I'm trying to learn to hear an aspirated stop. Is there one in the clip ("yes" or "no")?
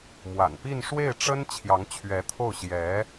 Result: yes